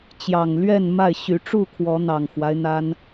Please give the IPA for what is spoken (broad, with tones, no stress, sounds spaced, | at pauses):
t͡ɕ j ɑ˨˩ ŋ l ɥ ɛ˥˨ n m a˥˨ ɪ̯ ɕ y˨˦ ʈ͡ʂ u˥˨ kʰ w ɔ˨˦ n̪ ɑ˨˩ ŋ x w a˦ ɪ̯ n̪ a˦ n